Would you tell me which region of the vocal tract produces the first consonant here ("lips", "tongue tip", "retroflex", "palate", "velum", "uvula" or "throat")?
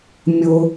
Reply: lips